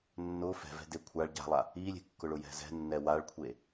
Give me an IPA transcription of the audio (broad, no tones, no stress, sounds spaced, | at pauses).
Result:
nː ʊ f ɛ̤ v ɛ̤ d e kʷʰ a ɭ ɟ a̤ lˠ a | i lʲ e̤ kː ʊ ɭ ʊ j ɛ̤ z ɛ̤ nː ɛ w a ɭ kʷʰ e